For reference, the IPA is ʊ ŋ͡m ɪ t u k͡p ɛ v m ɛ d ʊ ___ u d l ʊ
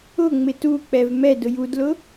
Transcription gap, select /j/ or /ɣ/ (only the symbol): j